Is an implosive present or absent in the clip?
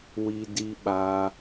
present